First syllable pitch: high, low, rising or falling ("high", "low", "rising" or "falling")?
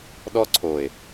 high